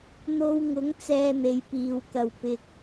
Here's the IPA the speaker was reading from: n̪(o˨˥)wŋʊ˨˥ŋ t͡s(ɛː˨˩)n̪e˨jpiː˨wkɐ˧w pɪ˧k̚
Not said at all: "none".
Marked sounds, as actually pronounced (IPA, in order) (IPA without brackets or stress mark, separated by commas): o˧, ɛː˧